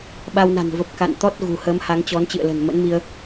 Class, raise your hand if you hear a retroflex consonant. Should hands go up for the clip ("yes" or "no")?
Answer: no